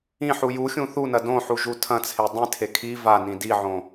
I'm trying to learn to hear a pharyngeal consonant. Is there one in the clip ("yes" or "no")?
yes